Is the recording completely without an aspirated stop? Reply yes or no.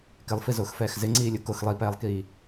yes